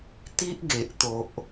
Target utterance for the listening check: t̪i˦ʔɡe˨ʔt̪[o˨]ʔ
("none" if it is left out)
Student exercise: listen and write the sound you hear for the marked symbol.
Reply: o˨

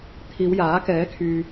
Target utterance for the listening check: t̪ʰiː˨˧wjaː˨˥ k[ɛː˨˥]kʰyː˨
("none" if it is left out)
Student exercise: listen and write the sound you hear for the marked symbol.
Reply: ɛː˨˥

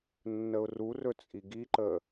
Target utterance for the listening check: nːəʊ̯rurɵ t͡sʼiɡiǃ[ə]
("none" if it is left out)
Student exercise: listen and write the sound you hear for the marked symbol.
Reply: ə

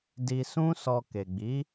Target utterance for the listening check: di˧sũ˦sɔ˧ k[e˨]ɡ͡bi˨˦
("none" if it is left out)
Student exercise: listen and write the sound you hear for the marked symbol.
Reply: e˨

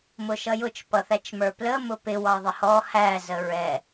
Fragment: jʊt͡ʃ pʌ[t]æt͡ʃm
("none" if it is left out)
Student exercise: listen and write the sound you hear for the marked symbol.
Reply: θ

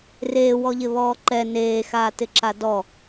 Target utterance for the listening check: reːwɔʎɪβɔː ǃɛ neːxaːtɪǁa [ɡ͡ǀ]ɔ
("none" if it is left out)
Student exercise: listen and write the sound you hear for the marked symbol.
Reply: d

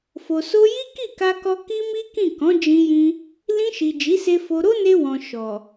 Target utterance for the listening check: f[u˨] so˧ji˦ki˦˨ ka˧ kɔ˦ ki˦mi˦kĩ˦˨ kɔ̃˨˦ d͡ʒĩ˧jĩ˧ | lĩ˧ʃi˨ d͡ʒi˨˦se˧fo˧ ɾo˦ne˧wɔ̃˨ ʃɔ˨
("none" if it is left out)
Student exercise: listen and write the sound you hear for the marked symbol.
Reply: o˨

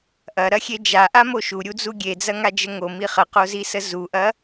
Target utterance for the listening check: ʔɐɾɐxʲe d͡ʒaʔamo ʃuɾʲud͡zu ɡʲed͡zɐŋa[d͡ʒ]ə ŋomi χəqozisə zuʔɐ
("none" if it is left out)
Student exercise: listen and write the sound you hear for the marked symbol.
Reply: d͡ʒ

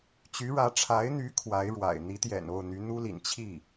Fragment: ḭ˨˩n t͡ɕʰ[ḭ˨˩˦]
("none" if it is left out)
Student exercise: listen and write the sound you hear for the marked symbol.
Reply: i˥˩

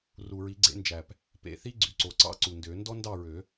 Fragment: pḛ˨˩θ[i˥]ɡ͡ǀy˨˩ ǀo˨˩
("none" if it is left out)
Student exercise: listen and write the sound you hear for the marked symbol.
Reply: i˥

